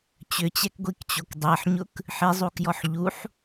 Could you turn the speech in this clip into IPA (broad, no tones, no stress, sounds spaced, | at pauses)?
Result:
t͡ɕ ʏ t͡ɕ ɛ k ɡʷ i k t͡ɕ o k dˤ ɛ ħ ɲ ʊ k | ħ i zˤ u k j ɔ ħ ʎ u ħ